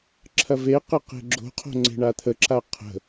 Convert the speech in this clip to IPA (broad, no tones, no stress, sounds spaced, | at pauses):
ǁʰ ɐ v e q ə q e̤ ɡ͡ǁ o̤ qʰ o̤ ŋ͡ǀ e̤ ɳ a t̪ʰ ə ǁ a qʰ ə̤